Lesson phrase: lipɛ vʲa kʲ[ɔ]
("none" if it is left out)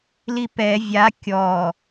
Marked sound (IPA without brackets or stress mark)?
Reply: ɔ